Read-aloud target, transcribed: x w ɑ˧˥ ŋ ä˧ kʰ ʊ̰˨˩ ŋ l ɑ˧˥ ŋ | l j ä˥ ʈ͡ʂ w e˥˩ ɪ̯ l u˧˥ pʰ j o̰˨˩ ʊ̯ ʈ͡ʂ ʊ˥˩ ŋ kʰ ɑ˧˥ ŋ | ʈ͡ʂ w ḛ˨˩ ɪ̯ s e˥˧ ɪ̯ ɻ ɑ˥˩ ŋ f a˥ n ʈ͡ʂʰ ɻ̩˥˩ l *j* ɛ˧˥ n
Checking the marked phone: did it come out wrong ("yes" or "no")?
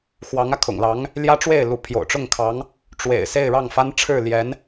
no